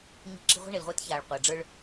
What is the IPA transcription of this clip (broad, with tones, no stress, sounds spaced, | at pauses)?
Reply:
ɲ i̤˦ ǁ i̤˦ ʁʷ a̤˦ ɳ e˨ l ʁʷ ɛː˦ t ç aː˨ ɭ qʷ æ˨ ɖ͡ʐ ə˞˦ ɭ